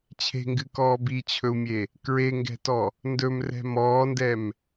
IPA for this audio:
t͡ɕʰ e̤ ŋ ɡ ɨ k ɔː b i t͡ɕʰ ɵ u̯ mʲ e | k ɹ e ŋ ɡ ɛ̤ t ɔ | n d ɵ m r ɛ̤ m ɔː n d ɛ m

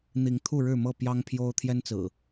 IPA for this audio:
n̪ i˨˦ ŋ t̪ʰ u˥˨ ɻ ɻ̩˥˨ m ɤ˥˨ p j ɑ˦ ŋ pʰ j o˦ ʊ̯ t̪ʰ j ɛ˦ n t͡s ɹ̩˨˩

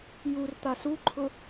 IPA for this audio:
j u r t̪ a s u ǃʰ ʊ

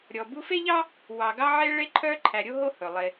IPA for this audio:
ɾʲ ɔ˨ b u˦ f e˥ ʎ ɑ˥ | w ɑ˨ ɡ ɑ˦ ʕ e˦ ɭ e˦ ǃʰ œ˦ ǃʰ æ˨ ɾʲ o˦ ɦ o˦ h ɵ˩ lˠ e˨

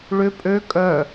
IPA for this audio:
ɭ ʏ pʼ ø kʼ œ

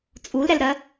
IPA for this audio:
t͡sʼ u l ɾ ɛ l ɾ ɜ

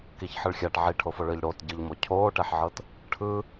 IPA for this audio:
k i ç ħ ɯ ɭ xʲ a ʈ ʕ i ʈʰ o f o ɭ ɯ ʎ ɽ o t ɟ ɯ ʎ m o cʰ oː ʈ ɛ ħ ʕ ɤ t | ʈʰ ɯ

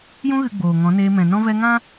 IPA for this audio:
j ũ˧ ɣ ɨ˨ ɡ͡b oː˨ ŋ ɔ̃˨˦ n eː˧ m ɛ̃˨ n ɔ̃˧ v ɛ˧ ŋ ã˦

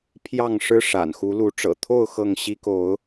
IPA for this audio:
pʰ j ɑ˥˨ ŋ ʂ ɻ̩˦ ʂ a̰˨˩ n x u˨˦ l u˨˦ ʈ͡ʂ ɤ̰˨˩ t̪ʰ o˥˨ ʊ̯ x ɤ˥˨ ŋ ɕ i˦ k o˨˦ ʊ̯

